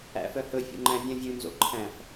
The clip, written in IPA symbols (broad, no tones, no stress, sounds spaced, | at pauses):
æ̰ f œ h ɵ fʲ ṵ ŋ͡ǃ æ̃ vʲ œ̃ vʲ ʉ n z o̰ ǃʰ æ̃ f